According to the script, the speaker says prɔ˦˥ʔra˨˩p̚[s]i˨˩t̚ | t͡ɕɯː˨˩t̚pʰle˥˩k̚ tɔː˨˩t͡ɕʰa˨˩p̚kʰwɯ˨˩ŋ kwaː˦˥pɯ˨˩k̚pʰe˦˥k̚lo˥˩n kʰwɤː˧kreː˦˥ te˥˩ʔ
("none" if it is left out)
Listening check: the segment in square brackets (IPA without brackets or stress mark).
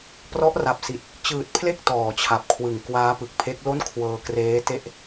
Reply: s